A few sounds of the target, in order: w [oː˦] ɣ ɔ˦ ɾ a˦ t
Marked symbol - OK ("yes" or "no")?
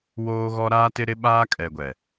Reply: yes